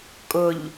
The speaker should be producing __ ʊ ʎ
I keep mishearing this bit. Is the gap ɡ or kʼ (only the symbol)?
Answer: kʼ